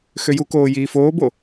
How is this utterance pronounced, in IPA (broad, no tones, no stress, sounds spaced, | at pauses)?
x ø j u k oː j iː f oː b o